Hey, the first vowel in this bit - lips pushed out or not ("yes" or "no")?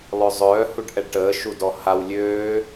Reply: yes